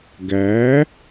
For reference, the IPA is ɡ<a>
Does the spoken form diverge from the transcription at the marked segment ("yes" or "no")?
yes